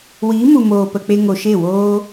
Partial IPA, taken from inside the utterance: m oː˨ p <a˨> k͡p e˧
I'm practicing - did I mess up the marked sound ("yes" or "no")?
yes